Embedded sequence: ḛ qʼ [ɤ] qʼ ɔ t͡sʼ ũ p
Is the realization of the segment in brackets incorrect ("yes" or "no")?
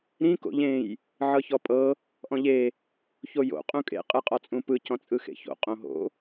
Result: yes